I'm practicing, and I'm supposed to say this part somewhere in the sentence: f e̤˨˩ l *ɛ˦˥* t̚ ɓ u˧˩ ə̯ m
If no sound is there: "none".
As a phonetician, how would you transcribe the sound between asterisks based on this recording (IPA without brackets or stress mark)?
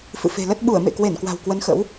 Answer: ə˦˥